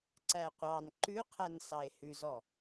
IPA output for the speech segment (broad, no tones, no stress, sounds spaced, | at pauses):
ǀ æ qʷ ɑ n ǃ ʉ qʰ æ n s ɑ e̯ h ʉ z ɔ